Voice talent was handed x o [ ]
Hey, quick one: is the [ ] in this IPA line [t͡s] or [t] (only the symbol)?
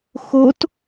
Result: t